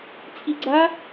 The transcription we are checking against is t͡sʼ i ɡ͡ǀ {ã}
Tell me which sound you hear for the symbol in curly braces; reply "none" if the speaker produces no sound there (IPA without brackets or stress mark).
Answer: a